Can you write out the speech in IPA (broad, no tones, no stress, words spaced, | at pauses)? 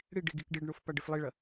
ɽiɖ iɡikɖiɖɳof paɖeflˠiɭɐ